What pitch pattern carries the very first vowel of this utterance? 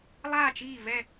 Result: falling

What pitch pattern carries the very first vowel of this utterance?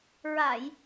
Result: low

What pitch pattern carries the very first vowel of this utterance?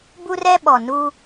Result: high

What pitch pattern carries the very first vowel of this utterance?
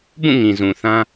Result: falling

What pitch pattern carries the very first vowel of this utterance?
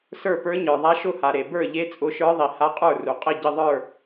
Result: falling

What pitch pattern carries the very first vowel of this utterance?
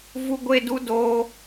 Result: high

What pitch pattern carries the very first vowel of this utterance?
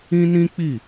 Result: high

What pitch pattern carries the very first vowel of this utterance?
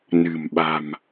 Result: low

